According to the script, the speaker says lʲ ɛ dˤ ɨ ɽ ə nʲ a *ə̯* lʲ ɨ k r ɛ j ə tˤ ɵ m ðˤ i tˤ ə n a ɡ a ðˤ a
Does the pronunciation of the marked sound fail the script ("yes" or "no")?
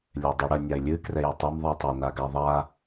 yes